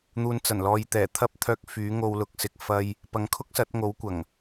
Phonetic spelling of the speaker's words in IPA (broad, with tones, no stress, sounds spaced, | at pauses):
n̪ uː˨˧ n t͡s ɐ˨˩ n l ɔː˨˧ j t̪ ɛː˨˩ t̪ʰ ɐ˥ p̚ t̪ʰ œː˧ k̚ f yː˨˥ ŋ o˧ w l ʊ˧ k̚ s ɪ˨ k̚ f ɐ˧ j | p ɐ˨˧ ŋ kʰ ʊ˥ k̚ s ɐ˨˥ t̚ ŋ o˨˥ w kʷ ɐ˨˩ ŋ